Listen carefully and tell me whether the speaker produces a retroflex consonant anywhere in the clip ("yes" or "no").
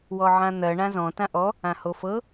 yes